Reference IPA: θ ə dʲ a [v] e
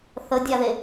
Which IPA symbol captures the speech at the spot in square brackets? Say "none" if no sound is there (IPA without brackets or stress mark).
ð